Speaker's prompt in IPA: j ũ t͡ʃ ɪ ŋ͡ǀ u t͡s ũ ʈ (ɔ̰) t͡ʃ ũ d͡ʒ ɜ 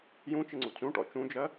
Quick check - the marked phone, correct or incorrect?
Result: correct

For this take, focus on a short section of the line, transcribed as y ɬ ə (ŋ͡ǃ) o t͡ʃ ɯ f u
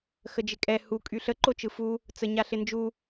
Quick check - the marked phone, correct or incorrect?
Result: incorrect: ǃ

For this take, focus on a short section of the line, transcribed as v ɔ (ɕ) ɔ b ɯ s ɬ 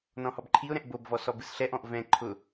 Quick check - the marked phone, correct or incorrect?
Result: incorrect: s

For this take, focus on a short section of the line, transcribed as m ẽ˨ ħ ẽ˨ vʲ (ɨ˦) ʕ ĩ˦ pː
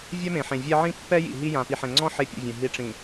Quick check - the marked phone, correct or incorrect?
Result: incorrect: ɛ˦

